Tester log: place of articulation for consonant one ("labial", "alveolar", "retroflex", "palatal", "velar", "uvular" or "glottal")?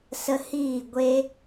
alveolar